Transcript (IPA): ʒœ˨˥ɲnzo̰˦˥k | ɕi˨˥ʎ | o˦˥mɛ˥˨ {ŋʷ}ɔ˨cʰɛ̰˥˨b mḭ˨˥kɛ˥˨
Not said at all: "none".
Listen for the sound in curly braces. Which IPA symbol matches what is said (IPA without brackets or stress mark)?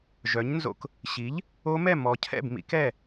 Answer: m